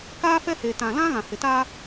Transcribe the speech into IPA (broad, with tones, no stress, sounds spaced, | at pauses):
k aː˦ f ɛ˦ h e˨ t ã˨ l ã˦ ɣ ã˨ h ɪ˨ t a˦